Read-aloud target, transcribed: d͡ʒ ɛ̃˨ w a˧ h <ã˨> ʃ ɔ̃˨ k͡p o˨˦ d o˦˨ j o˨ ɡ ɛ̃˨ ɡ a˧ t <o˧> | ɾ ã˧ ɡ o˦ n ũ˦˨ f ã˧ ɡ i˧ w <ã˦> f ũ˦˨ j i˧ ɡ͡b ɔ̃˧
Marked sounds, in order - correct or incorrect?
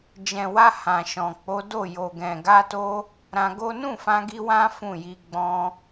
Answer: correct, correct, correct

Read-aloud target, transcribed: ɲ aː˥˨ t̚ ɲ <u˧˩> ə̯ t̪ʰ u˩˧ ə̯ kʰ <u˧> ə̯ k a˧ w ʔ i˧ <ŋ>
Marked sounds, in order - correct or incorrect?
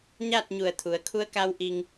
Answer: correct, correct, correct

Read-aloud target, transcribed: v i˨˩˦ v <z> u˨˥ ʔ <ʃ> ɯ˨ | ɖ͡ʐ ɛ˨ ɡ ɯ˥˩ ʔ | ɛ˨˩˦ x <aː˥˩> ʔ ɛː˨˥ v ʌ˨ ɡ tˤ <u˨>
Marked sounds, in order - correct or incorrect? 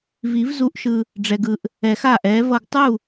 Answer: correct, correct, correct, incorrect

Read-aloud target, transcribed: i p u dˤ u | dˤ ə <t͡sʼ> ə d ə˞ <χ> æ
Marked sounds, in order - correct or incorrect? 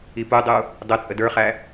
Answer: correct, correct

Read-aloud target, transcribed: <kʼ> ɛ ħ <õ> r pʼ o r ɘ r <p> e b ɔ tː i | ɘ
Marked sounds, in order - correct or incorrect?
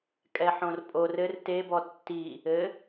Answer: correct, correct, incorrect

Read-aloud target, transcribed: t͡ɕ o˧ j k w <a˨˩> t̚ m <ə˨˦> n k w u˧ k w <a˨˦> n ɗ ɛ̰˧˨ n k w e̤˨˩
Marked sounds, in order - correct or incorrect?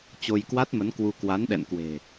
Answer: incorrect, correct, correct

